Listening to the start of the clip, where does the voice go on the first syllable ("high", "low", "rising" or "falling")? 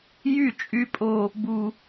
falling